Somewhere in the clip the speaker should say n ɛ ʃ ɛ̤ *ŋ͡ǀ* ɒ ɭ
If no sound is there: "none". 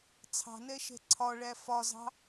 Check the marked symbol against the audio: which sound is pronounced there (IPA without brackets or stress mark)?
ǀʰ